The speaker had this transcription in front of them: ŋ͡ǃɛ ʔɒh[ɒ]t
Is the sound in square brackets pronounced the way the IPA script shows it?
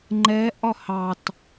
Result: no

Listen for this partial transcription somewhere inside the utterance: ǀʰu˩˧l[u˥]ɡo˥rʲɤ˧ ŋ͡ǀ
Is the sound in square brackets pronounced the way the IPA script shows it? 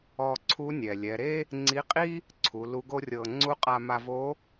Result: no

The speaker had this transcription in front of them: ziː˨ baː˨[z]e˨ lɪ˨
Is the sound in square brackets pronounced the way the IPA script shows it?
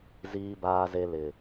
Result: yes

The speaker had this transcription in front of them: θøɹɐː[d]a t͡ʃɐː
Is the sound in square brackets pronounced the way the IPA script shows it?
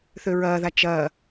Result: no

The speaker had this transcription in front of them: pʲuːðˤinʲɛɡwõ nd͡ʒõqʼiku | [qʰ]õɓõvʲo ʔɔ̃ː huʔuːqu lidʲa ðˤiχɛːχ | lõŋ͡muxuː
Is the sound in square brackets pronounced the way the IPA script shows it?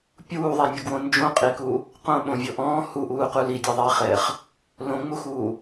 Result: no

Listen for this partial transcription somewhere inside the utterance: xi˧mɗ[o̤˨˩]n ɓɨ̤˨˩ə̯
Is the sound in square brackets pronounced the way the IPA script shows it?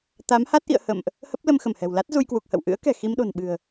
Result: yes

